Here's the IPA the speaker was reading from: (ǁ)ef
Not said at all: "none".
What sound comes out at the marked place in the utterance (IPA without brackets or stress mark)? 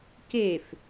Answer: k